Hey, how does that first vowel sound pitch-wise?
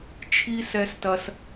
high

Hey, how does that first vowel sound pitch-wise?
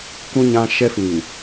high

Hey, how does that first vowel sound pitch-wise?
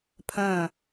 falling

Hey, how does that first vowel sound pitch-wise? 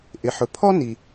low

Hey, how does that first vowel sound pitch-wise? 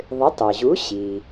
rising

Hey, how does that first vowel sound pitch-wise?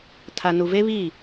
low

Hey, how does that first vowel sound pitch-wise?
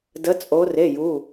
rising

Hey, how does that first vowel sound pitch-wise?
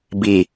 low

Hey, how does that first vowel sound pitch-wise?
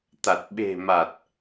low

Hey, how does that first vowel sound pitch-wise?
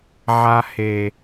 low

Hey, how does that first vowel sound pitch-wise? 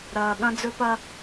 low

